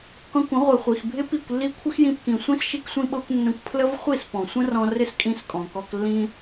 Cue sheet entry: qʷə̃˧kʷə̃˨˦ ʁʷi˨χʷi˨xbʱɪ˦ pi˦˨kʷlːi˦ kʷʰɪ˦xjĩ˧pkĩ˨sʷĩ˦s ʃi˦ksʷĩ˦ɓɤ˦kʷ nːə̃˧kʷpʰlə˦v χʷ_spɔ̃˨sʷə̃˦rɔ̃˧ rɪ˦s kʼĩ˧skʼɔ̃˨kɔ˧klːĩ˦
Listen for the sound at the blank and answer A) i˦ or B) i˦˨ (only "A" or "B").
B